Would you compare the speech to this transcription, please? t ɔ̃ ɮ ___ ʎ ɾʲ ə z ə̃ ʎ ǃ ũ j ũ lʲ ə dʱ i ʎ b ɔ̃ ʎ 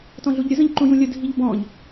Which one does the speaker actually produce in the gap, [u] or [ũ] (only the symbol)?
u